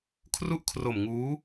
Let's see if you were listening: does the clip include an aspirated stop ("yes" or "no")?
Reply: yes